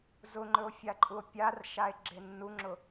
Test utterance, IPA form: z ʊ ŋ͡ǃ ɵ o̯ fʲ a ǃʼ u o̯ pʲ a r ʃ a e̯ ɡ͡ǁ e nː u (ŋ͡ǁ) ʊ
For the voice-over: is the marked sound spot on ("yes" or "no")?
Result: yes